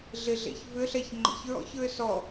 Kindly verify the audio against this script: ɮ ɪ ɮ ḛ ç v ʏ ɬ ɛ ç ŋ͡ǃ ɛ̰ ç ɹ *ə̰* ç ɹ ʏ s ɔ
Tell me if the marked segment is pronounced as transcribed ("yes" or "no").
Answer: no